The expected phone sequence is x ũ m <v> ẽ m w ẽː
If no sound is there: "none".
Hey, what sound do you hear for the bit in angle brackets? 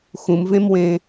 v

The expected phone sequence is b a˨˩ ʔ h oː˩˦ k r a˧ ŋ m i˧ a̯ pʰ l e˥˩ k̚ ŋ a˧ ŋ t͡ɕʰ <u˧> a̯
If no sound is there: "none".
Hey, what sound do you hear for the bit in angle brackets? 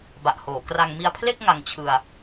ɯ˧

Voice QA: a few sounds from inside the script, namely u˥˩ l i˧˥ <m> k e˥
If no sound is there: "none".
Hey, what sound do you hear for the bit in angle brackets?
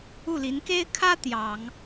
n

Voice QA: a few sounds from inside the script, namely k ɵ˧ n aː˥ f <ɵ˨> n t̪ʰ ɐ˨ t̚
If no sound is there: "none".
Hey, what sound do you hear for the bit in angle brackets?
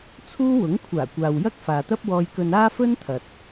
ɵ˥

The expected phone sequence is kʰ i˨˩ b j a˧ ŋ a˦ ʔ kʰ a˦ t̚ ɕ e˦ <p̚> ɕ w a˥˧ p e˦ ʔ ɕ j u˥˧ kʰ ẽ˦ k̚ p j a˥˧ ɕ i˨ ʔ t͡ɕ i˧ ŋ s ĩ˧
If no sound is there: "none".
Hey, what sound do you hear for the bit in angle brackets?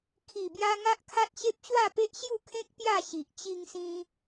p̚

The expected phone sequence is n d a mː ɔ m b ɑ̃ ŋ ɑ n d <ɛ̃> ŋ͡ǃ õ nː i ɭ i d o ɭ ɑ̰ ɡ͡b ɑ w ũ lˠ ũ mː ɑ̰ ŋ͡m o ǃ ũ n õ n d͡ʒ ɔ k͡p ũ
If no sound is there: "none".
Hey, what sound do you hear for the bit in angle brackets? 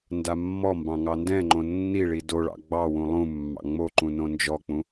ɛ̃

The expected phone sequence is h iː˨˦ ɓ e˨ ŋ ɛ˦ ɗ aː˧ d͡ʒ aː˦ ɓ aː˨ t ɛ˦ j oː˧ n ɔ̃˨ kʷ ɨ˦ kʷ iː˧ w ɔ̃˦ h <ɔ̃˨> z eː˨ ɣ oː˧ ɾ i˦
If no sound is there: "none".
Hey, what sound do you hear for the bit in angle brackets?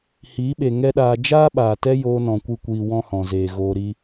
ɔ̃˨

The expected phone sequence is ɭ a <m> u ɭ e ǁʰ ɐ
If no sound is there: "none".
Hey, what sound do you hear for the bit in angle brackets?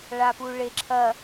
p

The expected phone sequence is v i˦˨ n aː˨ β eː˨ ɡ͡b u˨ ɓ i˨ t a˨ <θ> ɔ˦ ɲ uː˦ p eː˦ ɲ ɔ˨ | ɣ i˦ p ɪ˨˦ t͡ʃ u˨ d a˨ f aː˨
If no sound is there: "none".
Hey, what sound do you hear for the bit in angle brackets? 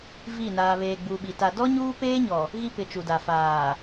d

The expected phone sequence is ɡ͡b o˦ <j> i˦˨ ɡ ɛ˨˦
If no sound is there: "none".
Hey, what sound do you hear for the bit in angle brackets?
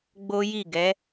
j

